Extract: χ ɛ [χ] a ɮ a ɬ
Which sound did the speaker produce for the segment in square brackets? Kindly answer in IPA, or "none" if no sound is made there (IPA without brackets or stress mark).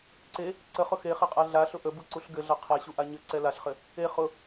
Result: qʼ